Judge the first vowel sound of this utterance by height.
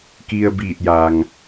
high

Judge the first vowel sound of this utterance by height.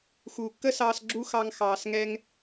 high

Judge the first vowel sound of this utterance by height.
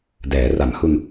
mid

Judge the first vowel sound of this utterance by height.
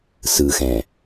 high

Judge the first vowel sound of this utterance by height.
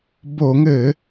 mid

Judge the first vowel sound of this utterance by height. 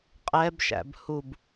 mid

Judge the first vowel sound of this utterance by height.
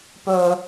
mid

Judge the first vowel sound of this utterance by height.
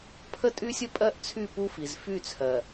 mid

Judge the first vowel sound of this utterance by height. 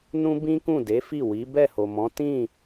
high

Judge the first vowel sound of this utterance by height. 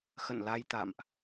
mid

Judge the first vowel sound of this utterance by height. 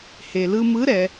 mid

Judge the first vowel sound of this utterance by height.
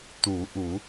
high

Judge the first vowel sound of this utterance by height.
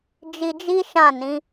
high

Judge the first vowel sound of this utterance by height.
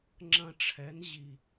low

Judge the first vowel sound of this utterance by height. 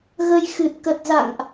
mid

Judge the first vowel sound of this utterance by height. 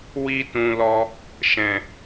high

